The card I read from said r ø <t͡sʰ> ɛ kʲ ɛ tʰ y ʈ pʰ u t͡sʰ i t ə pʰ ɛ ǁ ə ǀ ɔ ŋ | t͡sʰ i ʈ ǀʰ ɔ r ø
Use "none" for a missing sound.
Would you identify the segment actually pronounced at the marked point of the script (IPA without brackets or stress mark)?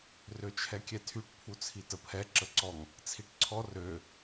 t͡ʃʰ